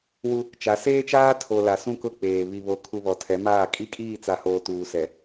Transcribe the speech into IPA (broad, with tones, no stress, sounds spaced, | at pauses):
w u˦ | t͡ʃ a˨˦ s eː˦ t͡ʃ aː˦ tʰ o˨ l a˨ s ũ˦ k ʊ˦˨ k͡p eː˨ β i˨ β o˨ kʰ u˨ β ɔ˨ tʰ ɛ˨˦ m aː˦˨ kʼ i˦ kʼ iː˦˨ t͡s a˨ h oː˨ t uː˨ s ɛ˨